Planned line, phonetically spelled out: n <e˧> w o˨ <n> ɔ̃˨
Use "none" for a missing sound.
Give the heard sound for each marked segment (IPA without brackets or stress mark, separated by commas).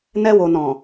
ɛ˧, n